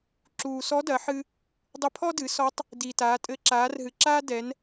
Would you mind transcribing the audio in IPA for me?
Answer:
ǁ uː˩ s ɔ˧˥ d ɐ˩˧ ħ ɨ˧ | dˤ ɘ˧ pʰ ɔ˥ d ɨ˩˧ s ɔ˧˥ tˤ | d i˩ t aː˩˧ tʼ ɘ˧˥ ǁ aː˩˧ r ɦ ɨ˩ ǁ aː˥ d ɛ˩˧ n

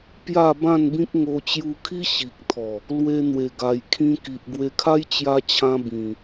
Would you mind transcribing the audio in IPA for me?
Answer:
p j a˥˧ b ã˥˧ n b ĩ˦ k̚ ŋ o˧ t͡ɕ j u˧ kʰ i˦ ɕ i˨ k̚ t̪ʰ ɔ˨˩ | l w e˧ n̪ w e˨˩ ɡ a˨˩ j kʰ ĩ˧ k i˨ ʔ ɡ w e˧ kʰ a˦ j t͡ɕ j a˧ t͡ɕʰ ã˧ b ĩ˨˩

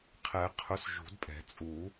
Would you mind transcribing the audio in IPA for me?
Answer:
qʰ ɛ˨˩˦ qʰ ʊ˨˥ s ʒ ṳ˨˩˦ d pʼ ɛ̤˨˩˦ t͡sʼ u˨˩˦

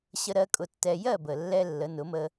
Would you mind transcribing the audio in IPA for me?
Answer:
ɕ ə˧ ɾ ɜ˧ kʼ ʊ˧ tː ɛ˧ j ɜ˥˩ b ə˨˩ lː ɛ˧ lː ə˩˥ n ʊ˩˥ m ə˧

